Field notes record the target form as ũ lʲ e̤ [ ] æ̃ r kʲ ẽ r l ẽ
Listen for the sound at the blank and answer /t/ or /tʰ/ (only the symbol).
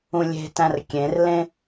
t